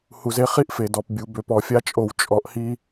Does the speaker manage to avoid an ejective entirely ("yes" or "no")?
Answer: no